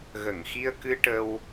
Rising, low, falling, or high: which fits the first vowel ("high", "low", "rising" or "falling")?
low